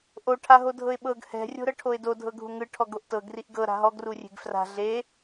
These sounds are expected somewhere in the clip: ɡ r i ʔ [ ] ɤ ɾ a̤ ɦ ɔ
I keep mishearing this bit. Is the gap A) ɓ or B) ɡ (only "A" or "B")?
B